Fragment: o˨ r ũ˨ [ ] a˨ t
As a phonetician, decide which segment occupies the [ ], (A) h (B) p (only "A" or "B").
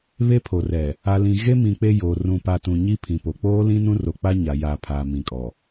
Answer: B